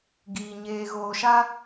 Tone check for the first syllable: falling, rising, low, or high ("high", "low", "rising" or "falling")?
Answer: low